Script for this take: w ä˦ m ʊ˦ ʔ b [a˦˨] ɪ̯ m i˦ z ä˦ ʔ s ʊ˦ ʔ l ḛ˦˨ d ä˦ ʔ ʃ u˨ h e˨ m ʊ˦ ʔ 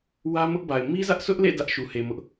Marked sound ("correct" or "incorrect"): incorrect